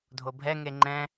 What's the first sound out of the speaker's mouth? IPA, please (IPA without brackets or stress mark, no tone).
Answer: dʱ